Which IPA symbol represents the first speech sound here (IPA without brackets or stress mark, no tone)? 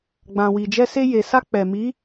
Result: ɡ͡b